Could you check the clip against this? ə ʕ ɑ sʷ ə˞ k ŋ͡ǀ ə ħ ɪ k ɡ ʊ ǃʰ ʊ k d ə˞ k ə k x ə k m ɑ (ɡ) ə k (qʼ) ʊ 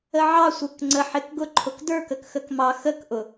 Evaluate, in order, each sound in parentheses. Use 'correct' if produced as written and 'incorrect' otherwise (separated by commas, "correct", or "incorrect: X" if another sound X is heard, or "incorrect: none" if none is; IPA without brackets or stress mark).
incorrect: x, incorrect: ʔ